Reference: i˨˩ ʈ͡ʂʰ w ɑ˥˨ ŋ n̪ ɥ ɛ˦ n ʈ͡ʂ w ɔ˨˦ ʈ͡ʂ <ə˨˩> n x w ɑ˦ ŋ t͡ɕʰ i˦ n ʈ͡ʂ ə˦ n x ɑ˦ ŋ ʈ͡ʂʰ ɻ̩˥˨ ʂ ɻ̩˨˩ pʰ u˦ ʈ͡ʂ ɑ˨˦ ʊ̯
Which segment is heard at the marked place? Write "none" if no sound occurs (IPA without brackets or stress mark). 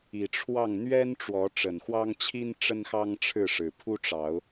ə˨˩